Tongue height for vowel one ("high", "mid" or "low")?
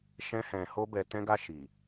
mid